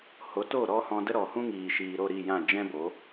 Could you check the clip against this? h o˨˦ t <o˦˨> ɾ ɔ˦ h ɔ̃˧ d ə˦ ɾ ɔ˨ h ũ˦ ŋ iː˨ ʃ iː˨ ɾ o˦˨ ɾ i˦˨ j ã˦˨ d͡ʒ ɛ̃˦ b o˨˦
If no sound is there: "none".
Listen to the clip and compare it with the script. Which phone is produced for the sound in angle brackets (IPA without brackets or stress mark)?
o˦˨